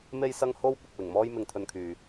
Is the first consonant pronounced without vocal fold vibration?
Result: no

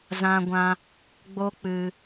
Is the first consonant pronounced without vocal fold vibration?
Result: no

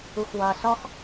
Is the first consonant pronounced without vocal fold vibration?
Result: yes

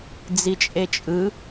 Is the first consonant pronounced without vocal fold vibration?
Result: no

